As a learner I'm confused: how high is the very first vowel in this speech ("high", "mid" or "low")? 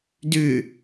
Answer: high